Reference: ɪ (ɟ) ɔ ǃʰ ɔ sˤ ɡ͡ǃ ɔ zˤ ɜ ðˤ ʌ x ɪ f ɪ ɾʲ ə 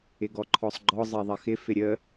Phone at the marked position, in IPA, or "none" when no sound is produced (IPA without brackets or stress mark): ɡ